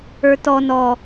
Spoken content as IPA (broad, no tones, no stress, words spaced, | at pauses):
ə˞tɔ nɔ